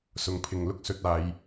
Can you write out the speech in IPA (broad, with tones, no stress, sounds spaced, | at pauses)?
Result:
s ʊ˧ ŋ pʰ ɪ˧ ŋ l ʊ˥ k̚ s ɵ˧ t̚ aː˧ j